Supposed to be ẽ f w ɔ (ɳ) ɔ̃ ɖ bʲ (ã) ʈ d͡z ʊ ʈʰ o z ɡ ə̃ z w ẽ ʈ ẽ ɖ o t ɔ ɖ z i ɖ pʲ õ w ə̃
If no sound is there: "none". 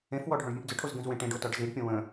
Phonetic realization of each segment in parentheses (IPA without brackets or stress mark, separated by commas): ɖʱ, ə̃